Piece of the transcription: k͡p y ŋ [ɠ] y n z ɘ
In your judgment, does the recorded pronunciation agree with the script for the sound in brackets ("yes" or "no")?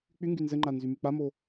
no